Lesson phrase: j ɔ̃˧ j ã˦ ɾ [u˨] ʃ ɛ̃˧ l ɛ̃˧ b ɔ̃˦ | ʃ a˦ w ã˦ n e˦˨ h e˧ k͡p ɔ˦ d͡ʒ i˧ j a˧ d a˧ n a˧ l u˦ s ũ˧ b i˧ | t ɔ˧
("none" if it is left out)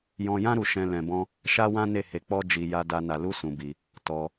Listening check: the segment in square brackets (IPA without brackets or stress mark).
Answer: u˧